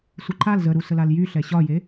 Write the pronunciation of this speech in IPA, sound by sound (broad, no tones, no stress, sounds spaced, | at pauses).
sʷ ɛ ǃʰ a l z ə ɾ u s ə l a l j y ɬ ɛ ɕ ɒ j e